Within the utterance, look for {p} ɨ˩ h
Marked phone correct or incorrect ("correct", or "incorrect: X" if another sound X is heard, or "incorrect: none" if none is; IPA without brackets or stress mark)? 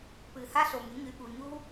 correct